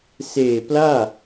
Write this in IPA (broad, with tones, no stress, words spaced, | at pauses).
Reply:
seː˨˩ plaː˥˩